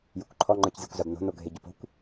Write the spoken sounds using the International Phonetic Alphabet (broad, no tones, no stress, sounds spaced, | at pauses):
j ʊ kʷ ǃʰ ɔ ŋ͡ǃ ə˞ c zʲ ə˞ kʷ z a b n o̤ n o ɡʱ e ɟ ʊ p o̤ kʷ